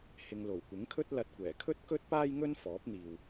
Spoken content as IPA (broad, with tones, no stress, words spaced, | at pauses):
hɪ˨ŋlo˨˩wkʷɪ˨˥ŋkʰɵ˥t̚ lɐ˨t̚kʷɛː˨˩kʰɵ˥t̚ kɵ˥t̚paː˥jŋɵ˥n fɔː˨˥p̚n̪iː˨w